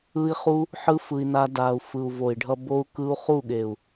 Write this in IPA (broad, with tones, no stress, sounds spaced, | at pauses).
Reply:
ɯ˦ i̯ χ u˦ | ħ ɯ˧ f ɯ˧ i̯ n a˦ d a˨ u̯ f ɯ˨ u̯ v o˨ i̯ ɖʱ ʌ˧ b o˦ u̯ k ɯ˦ u̯ χ u˦˨ ɠ e˨ u̯